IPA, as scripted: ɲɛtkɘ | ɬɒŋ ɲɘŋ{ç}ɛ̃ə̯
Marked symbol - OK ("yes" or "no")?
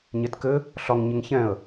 yes